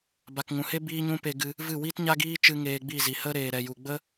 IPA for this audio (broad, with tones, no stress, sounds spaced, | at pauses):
b a˨ k ŋ ũ˨ h e˦ b iː˦ ɲ ũ˦ p e˧ ɡ ɨ˧ | v ɨ˦˨ w i˦ t ɲ a˦ ɡ iː˦ t͡ʃ ɨ˧ ŋ eː˧ ɡ͡b i˦˨ z i˨ h ə˦ ɾ eː˨ ɾ ɛ˨ j u˨ ɡ͡b ə˦